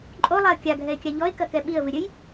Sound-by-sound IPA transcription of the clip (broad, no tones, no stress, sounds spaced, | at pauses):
ǃʼ o lˠ a ə̯ kʲ a ɡʱ ɛ ɪ̯ kʲ a ʎ ɔ ɪ̯ k ɐ k ɛ ɓ i ə̯ v ɨ ɾʲ ɘ j